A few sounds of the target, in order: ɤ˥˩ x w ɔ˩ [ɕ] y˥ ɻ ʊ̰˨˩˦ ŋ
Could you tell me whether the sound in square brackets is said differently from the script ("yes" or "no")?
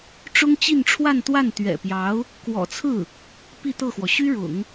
no